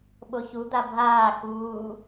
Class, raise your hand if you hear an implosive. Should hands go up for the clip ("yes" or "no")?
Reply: yes